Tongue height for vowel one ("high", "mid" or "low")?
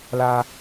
low